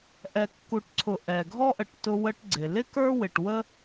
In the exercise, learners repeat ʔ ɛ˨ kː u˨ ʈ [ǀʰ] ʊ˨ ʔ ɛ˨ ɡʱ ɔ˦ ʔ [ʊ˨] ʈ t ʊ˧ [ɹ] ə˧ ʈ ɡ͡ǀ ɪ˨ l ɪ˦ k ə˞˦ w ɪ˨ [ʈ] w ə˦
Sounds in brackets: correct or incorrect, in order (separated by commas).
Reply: correct, incorrect, incorrect, correct